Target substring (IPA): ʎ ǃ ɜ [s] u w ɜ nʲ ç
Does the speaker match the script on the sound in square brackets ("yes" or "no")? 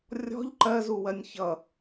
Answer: no